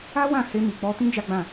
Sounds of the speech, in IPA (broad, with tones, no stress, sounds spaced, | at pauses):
a˦ w ã˦˨ h e˧ m i˨ k͡p ɔ˧ t ĩ˦ d͡ʒ a˦ ɡ͡b ã˦˨